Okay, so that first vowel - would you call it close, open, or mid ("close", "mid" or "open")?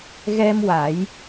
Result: mid